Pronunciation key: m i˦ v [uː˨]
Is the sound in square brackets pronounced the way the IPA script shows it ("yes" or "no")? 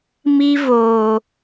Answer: no